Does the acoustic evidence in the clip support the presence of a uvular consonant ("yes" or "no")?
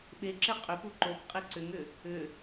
yes